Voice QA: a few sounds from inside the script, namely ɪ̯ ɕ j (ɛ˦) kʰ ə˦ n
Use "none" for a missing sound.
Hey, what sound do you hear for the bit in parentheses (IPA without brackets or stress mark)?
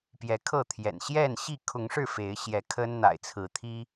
ɛ˨˦